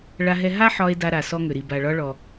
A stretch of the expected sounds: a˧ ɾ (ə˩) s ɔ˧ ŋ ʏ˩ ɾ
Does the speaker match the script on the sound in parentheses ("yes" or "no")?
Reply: no